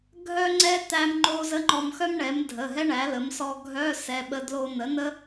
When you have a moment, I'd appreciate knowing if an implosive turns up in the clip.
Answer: yes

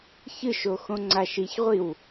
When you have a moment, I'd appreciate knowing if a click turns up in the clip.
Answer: yes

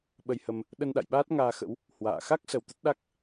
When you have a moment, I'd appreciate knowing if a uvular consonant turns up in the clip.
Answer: no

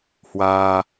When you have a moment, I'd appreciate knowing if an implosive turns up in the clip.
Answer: no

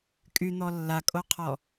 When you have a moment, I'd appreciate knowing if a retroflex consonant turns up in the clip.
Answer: no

